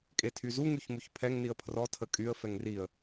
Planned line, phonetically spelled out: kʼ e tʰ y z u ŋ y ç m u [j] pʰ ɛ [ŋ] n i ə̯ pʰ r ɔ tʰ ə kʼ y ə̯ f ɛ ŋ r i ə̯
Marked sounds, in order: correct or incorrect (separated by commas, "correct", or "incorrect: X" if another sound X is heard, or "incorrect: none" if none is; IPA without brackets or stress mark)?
incorrect: ç, correct